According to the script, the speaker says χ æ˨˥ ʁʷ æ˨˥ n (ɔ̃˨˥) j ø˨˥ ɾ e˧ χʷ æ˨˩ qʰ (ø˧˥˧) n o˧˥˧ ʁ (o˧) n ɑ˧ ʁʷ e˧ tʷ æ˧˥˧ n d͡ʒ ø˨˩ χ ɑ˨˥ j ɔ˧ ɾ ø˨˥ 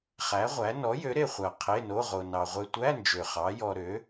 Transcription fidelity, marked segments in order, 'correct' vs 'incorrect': incorrect: ɔ˨˥, incorrect: e˧˥˧, correct

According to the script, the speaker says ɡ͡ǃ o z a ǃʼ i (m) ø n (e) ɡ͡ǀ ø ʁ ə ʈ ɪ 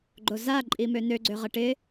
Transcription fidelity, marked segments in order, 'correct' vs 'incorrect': correct, incorrect: ø

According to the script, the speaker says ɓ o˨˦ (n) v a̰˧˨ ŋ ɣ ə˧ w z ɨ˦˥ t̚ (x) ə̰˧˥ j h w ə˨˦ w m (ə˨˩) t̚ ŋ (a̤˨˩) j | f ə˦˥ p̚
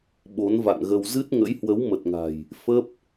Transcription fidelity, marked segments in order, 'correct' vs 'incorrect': correct, incorrect: ŋ, correct, correct

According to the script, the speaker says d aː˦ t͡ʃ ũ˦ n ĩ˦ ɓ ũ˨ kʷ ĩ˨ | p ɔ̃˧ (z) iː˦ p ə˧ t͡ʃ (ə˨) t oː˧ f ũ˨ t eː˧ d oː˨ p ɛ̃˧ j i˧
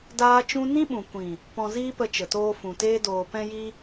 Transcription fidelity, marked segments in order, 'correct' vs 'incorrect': correct, correct

